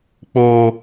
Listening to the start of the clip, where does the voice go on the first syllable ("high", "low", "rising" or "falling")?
low